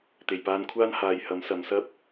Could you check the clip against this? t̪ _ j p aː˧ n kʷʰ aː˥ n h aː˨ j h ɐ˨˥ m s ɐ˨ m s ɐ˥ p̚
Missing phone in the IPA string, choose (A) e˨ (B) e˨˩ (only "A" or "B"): B